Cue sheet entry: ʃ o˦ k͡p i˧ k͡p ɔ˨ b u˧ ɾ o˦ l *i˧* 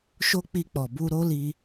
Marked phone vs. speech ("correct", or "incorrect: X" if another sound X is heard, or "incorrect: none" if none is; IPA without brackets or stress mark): correct